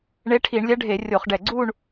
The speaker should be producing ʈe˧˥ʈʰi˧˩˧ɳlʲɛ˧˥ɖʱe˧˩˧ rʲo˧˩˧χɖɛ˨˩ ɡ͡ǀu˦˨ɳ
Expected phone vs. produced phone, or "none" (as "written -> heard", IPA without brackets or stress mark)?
ʈ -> ɳ